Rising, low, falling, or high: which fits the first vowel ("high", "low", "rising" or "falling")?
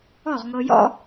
falling